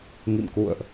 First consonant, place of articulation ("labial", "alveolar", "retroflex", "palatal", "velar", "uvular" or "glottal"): velar